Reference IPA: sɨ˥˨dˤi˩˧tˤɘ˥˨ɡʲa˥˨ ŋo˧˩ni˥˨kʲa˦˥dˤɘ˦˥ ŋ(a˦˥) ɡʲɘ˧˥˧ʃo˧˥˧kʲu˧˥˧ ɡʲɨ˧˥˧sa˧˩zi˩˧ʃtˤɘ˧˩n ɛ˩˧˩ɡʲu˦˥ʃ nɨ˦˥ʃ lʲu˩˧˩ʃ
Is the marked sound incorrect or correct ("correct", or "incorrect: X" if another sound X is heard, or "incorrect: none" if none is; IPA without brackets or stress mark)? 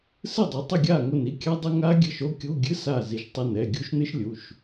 correct